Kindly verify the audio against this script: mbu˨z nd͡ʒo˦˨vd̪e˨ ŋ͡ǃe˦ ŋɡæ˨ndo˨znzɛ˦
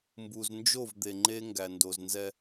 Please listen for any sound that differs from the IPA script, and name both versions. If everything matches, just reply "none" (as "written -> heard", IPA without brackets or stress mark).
none